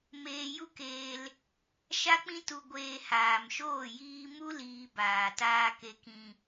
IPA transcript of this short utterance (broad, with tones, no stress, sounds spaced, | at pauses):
m eː˧ j u˦ k eː˧ l | ʃ a˦ k͡p ĩ˦ t u˧ ɡʷ eː˧ h aː˨ m ʃ oː˦˨ j iː˧ m u˦ l iː˧ b aː˨ t aː˧ k e˨ k ĩ˨